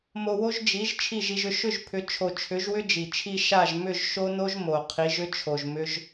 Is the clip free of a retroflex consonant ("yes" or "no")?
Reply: yes